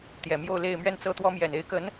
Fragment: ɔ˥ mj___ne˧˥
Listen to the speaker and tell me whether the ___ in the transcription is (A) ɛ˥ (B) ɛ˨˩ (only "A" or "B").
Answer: B